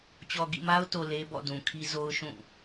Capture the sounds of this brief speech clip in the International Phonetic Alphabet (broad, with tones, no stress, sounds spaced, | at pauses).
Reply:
t͡ɕ ɔ˨ ɡ ḭ˦˨ m a˦ ʊ̯ t o˨ l e˦ b ɔ̰˦˨ d ũ˨ kʰ i˦ z o˦ ʊ̯ ʃ ũ˦˨